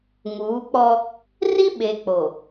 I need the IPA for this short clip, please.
ŋuː˨˦k͡pɔ˦ | ri˦ɓe˨k͡po˨

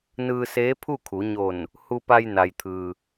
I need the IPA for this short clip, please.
nɯː˧seː˧˥pʰu˥˨kʰu˩˧ ɲo˧˩n | hu˧pa˧jna˩jt̪ʰɯː˩

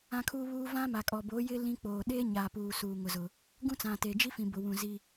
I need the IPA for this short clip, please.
ã˦kʰuː˦βuː˦ vã˦ma˨kʼɔ˨ boː˨˦jɪ˦ lĩ˦ k͡poː˨ ɗeː˦ɲaː˨puː˨ suː˨ŋʊ˨zʊ˨ | ɡũ˦ t͡sã˨te˨d͡ʒi˦fĩ˨ bʊ˨wũ˨ zi˦

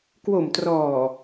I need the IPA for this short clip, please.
kwo˨˩mtrɔː˨˩

